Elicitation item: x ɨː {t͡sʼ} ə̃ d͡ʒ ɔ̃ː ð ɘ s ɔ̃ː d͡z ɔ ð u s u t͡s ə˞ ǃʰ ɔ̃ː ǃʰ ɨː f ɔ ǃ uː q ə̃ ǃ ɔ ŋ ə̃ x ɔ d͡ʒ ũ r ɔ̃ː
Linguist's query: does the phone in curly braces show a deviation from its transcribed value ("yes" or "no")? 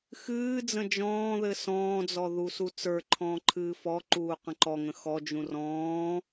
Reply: yes